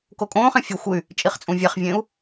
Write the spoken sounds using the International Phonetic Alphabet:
kokʼõːχẽ fʲo xʷɯy̯ | t͡ʃʼiχt͡sʼũvʲɛχvʲẽːu̯

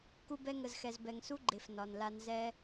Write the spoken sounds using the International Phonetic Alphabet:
ku˧bɛ˧ŋə˨zxɛ˨z bɛ˨ŋsu˦ɡ͡ǃe˨f nɒ˨nla˧n zɛ˦

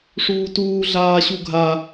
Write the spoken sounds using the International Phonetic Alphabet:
ʂuːtuː ɮaːɕuɡʱa

